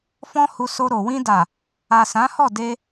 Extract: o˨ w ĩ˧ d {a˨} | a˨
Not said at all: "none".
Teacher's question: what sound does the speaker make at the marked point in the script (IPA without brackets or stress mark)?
a˨